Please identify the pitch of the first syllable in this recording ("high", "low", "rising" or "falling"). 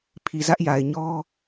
low